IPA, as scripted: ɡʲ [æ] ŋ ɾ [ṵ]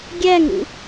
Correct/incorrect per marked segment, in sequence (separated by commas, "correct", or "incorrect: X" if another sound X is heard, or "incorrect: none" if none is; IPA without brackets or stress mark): correct, correct